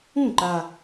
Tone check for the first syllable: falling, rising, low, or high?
falling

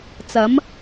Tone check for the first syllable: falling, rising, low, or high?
rising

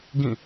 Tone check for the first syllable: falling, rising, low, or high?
falling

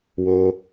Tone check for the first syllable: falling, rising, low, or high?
high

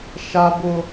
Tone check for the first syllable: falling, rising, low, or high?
high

